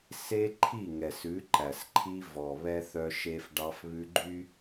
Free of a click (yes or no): no